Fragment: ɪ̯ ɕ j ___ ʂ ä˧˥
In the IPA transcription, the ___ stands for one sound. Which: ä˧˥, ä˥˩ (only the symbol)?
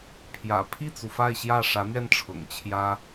ä˥˩